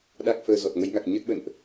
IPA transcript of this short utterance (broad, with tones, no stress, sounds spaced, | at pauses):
ɗ a˦˥ k̚ f əː˧ z ɔ˨˩ t̚ ŋ ə˨˦ j ŋ a˨˩ k̚ ɲ ə˦˥ t̚ ɓ ə̰˧˨ n ʔ